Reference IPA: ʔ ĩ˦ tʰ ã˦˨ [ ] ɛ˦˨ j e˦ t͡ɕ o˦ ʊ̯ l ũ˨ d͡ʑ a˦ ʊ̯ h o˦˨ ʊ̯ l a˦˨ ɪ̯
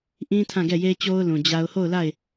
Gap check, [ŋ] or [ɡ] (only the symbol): ɡ